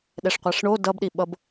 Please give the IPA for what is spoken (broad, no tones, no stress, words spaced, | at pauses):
ɗɛʂqʷaʂɳo dʌbɗiɓʌb